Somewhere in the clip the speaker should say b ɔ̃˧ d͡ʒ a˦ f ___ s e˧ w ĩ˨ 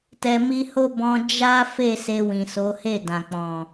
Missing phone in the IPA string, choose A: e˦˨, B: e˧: A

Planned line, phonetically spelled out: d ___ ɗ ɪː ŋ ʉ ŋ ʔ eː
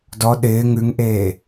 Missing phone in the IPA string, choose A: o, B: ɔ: B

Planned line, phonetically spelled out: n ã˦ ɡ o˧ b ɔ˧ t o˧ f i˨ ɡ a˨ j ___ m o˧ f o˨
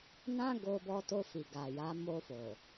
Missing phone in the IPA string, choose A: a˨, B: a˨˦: B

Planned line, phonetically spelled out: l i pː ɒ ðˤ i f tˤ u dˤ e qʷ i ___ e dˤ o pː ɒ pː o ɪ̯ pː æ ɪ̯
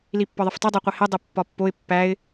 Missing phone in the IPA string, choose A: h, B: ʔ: A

